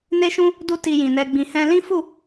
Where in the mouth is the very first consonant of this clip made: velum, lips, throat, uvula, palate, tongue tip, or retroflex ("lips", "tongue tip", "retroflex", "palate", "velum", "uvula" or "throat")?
tongue tip